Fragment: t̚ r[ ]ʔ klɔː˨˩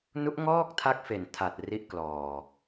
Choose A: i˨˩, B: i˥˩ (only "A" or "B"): B